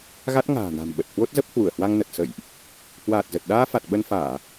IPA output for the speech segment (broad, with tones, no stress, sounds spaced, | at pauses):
ɣ a˦˥ t̚ ŋ a̤ː˨˩ n a̤˨˩ m ɓ ə˨˩ t̚ h w o˦˥ t̚ z ə˦˥ p̚ h w u˧˩ ə̯ h w a˧ ŋ n ə˨˩ t̚ s ə̰˧˨ j ʔ | h w aː˨˩ t̚ z ə˨˩ t̚ ɗ aː˧ f a˨˩ t̚ ɓ ə˧ n f aː˧˩˨